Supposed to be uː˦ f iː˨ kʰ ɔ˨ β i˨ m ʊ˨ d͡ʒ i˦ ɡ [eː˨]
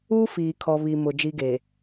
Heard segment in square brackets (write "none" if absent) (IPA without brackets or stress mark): eː˨